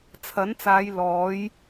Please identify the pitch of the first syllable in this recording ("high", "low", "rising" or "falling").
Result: rising